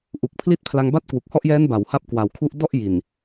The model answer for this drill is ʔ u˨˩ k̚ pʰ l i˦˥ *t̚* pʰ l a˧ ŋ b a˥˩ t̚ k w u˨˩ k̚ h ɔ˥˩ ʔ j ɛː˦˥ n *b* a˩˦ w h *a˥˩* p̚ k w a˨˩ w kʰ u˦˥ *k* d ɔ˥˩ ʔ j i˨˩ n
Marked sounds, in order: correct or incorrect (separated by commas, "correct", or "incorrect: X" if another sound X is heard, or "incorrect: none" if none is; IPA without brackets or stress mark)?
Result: correct, correct, correct, incorrect: ʔ